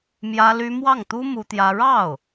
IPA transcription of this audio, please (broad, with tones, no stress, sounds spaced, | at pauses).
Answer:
m j ä˥ l y˥ m w ɑ˥˩ ŋ t̪ u˥ m u˥ t̪ j ä˥ ɻ ɑ˥˩ ʊ̯